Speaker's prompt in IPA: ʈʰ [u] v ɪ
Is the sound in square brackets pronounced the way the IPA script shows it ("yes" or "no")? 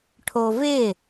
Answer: no